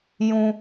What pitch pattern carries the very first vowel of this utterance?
high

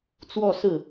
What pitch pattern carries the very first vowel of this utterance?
falling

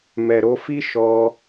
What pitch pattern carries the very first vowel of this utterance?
low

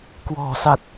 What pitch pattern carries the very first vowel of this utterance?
low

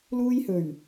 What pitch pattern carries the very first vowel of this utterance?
high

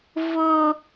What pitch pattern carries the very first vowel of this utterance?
high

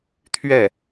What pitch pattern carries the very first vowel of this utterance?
falling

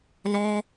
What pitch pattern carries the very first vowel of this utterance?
high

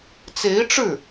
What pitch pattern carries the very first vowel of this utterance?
rising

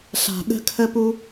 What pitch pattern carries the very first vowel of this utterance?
low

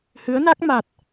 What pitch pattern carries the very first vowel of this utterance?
rising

